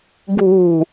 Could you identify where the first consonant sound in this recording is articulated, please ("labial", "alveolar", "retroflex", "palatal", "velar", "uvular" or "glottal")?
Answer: velar